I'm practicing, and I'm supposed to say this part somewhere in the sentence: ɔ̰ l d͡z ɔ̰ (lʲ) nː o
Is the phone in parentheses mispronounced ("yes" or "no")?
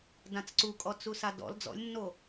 no